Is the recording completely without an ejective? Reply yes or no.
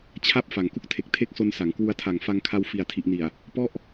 yes